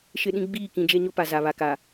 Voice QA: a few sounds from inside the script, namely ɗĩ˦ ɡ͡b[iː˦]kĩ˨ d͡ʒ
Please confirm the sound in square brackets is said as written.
no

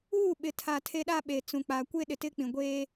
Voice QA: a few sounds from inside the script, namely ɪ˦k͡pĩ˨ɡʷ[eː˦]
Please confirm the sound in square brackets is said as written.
yes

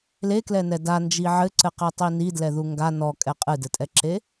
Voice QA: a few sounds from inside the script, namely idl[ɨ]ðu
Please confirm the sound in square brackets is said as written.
no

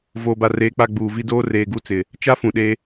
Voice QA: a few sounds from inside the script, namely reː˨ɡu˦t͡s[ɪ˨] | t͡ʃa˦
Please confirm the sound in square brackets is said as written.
yes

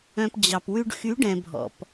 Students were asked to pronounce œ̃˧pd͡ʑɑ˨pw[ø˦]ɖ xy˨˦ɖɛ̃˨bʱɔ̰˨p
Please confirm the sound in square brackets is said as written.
no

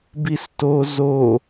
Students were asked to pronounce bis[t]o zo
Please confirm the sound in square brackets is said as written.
yes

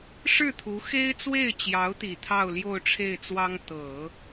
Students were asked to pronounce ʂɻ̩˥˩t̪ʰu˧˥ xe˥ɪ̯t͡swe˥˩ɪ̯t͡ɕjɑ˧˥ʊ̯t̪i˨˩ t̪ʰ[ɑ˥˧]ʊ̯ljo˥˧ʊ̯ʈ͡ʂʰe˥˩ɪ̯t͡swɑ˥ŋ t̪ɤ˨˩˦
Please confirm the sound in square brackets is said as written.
yes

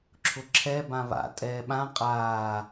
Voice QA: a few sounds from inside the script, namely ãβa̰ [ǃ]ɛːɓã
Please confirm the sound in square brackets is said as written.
no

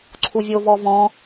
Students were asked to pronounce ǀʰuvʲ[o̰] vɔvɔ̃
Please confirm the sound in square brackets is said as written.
no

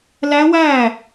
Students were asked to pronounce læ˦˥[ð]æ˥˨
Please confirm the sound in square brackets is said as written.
no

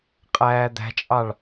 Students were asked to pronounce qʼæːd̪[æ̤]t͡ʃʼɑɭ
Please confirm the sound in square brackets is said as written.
yes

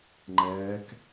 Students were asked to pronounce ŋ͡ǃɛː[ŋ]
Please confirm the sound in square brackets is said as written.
no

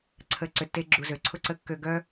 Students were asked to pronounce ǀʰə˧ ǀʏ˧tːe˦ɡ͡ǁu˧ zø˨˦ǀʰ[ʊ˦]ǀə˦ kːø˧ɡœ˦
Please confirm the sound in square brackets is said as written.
yes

